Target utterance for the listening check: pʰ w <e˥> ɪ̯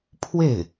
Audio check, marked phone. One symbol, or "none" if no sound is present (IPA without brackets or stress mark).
e˥˩